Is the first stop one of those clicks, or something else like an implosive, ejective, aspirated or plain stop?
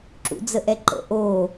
click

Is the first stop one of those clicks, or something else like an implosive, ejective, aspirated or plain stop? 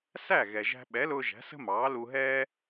implosive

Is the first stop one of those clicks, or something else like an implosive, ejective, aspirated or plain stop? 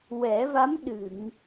implosive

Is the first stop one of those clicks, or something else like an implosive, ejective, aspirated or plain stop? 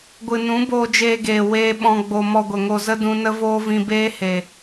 plain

